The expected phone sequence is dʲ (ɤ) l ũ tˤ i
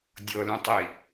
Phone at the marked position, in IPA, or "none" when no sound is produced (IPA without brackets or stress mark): ɤ